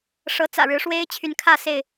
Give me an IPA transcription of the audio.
ʂɤ˨˦t͡sä̰˨˩ ɻɻ̩˨˦ʂwe˦ɪ̯ t͡ɕʰy˨˦nkʰä˥˨ se˥˨ɪ̯

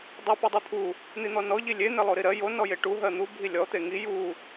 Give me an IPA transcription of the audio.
dˤi pɔdˤot̪ʰu | n̪in̪ɔnɔ ʎilʲe n̪elˠoɾiɾɜ jo nɔjeʈu ɦɜn̪u bʱilʲɔ t̪eŋi ju

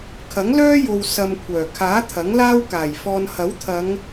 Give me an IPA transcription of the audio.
kʰɐ˨˥ŋlœː˥jo˨w sɐ˧mkʷʰœː˨˩ kʰaː˨˥ t̪ʰɐ˨˥ŋlaː˥wkaː˨˩jfɔː˧n hɐ˨˥wt̪ʰɐ˨˧ŋ

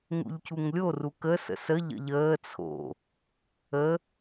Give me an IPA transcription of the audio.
ŋṵʎcʰuŋlʲo rukə sə̰sə ʎə̰ʎəː t͡sʰo̰ | ə

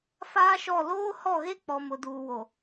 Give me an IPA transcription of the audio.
faː˦ʃɔ˦˨ loː˦hɔ˦˨ɣe˦k͡pɔ˨ mʊ˨duː˨wo˨

